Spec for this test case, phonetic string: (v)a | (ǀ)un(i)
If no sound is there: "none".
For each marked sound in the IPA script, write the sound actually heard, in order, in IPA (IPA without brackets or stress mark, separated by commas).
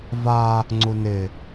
v, ŋ͡ǀ, ɪ